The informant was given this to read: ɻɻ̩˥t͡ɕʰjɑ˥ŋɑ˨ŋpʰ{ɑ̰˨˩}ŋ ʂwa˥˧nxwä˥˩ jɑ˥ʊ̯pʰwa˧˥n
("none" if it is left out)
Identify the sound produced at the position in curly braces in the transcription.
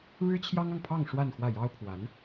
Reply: ɑ˥˧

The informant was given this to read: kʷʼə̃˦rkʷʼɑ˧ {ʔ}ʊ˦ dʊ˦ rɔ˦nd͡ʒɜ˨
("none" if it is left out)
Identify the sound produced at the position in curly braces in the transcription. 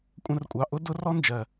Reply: ʔ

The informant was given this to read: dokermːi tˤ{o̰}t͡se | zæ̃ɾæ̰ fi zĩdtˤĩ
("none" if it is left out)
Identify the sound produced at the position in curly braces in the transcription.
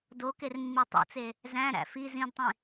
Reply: o̰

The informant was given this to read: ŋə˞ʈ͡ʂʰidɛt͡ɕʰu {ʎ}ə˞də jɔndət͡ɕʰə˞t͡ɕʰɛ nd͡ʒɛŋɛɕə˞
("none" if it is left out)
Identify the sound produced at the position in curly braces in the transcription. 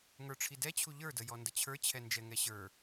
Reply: ʎ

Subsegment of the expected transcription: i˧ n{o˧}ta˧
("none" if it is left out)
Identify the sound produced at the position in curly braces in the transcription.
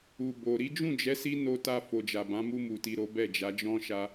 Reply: o˧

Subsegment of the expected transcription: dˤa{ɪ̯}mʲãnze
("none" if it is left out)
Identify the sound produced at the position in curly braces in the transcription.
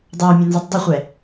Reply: ʊ̯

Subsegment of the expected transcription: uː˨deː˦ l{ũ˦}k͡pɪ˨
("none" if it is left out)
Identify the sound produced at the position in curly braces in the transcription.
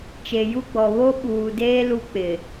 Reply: u˦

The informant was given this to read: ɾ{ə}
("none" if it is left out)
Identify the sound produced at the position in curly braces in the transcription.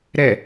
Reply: ɛ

